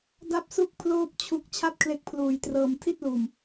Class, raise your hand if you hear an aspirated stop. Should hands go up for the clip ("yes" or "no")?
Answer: yes